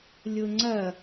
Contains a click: yes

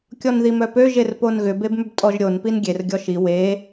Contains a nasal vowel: no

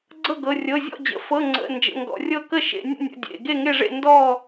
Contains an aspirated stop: no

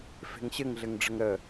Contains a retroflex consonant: yes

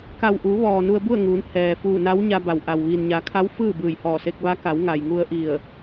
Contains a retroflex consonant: no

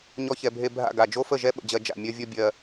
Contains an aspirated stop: no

